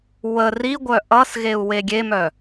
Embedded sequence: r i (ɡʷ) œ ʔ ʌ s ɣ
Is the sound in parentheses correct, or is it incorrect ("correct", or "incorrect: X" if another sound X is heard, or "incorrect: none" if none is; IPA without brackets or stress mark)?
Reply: correct